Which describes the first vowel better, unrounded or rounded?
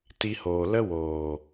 unrounded